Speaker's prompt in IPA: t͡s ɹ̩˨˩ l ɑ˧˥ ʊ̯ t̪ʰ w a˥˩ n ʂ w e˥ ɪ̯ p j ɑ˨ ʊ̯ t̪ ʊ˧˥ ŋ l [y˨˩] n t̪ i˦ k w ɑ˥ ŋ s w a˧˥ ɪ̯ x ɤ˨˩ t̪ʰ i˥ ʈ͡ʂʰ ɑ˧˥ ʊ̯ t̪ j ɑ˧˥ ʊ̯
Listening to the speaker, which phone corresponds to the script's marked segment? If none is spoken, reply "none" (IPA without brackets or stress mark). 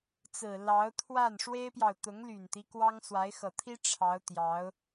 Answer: y˨˩